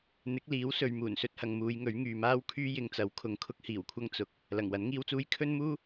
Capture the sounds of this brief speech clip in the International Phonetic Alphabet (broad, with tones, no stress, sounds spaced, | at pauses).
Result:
n̪ ɪ˨˥ k̚ l iː˨˥ w s ɵ˨ ɥ m uː˨˩ n s ɵ˧ t̚ h ɐ˨ ŋ m uː˨˧ j ŋ ɵ˨˥ ɥ ŋ yː˨ m aː˥ w kʰ yː˥ j ɪ˨ ŋ t͡s ɐ˨˧ w kʰ ʊ˨ ŋ kʰ ʊ˥ k̚ h iː˨˩ w kʷʰ ɐ˥ ŋ t͡s ʊ˨˥ k̚ | l ɐ˨˩ ŋ w ɐ˨˥ n ŋ iː˥ w t͡s uː˥ j kʰ ɵ˥ n m uː˥